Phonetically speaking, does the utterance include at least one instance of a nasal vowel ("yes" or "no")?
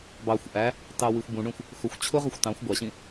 yes